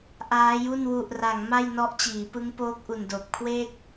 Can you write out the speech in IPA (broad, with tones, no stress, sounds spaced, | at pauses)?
ʔ aː˦˥ j u˥˩ n w u˨˩ ʔ r a˩˦ ŋ m a˥˩ j n ɔ˦˥ ʔ t͡ɕ iː˩˦ p ɯ˦˥ ŋ p oː˦˥ k̚ ʔ u˨˩ n d oː˨˩ p̚ kʰ w eː˥˩ k̚